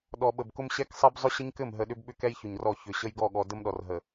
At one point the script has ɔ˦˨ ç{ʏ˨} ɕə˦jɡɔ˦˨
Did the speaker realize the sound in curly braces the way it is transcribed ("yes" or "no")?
yes